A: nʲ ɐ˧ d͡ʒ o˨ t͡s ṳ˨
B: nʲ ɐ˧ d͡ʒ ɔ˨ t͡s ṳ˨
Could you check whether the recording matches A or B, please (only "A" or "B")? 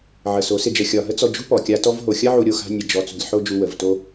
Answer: B